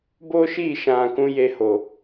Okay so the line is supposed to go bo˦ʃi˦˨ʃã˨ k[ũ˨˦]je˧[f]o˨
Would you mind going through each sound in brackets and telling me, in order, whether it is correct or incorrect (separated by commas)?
correct, incorrect